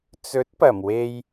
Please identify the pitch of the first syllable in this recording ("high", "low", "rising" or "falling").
rising